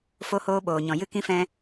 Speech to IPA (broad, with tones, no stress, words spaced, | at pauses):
fo˧hoː˧ɓoː˨ɲɔ̃˨ jɨ˧ kĩ˧fɛ̃˧